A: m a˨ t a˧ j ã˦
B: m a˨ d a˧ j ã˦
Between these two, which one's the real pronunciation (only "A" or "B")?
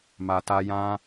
A